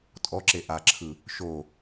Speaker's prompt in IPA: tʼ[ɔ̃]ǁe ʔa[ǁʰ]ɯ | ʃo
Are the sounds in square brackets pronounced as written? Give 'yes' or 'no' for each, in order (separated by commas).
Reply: no, yes